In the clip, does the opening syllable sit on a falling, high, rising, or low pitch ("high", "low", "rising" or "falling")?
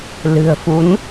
low